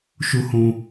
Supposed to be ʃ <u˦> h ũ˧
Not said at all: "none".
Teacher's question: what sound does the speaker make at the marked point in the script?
u˦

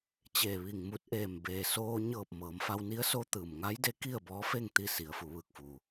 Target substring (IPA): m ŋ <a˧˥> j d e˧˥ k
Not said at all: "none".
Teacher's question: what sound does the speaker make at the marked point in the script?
a˧˥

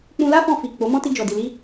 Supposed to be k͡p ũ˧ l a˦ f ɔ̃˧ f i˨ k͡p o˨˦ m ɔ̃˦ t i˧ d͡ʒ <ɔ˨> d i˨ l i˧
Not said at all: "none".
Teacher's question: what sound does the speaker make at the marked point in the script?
ɔ˨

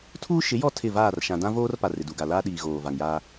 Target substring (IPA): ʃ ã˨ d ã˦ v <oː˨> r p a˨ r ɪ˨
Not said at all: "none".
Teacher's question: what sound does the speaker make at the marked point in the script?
oː˦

